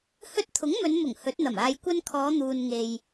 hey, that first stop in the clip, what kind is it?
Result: plain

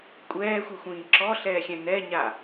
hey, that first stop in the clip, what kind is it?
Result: ejective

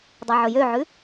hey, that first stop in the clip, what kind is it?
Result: plain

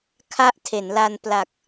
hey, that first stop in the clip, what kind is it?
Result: aspirated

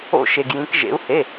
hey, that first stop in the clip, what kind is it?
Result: plain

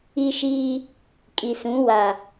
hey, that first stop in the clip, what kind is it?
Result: ejective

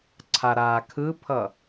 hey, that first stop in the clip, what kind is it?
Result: click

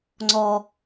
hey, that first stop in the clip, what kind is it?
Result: click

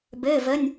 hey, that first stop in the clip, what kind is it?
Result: plain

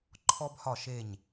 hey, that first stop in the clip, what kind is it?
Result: click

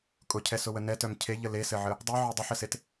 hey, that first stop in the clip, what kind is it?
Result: ejective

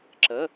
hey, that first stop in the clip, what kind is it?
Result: click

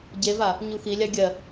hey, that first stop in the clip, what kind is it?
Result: plain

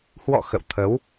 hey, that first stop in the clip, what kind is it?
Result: aspirated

